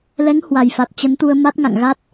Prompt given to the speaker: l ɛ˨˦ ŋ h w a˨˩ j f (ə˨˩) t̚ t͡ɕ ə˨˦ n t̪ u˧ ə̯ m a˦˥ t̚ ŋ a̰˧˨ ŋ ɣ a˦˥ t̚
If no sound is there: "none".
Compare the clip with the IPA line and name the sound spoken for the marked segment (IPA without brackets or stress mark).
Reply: a˨˩